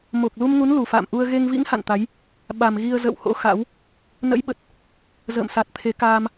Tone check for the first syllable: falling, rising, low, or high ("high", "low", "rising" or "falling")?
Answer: low